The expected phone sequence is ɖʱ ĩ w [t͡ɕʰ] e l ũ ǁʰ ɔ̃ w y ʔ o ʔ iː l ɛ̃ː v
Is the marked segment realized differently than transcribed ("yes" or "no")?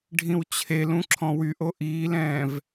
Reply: no